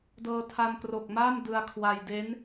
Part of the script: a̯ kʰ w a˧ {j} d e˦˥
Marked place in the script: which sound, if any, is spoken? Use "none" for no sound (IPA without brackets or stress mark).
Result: j